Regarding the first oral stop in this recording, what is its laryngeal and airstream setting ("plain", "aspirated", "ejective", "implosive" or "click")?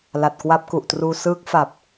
plain